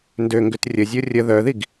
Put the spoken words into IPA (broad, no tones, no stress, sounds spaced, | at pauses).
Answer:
n d ø ŋ ɡ ʏ t rʲ ə zʲ o rʲ ə ð œ ð i ɡ